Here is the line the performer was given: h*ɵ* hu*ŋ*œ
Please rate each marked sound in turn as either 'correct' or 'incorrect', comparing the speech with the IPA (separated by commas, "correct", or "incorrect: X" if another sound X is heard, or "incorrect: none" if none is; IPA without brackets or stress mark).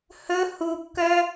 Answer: correct, incorrect: kː